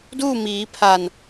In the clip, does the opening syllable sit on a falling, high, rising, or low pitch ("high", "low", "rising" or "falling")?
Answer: falling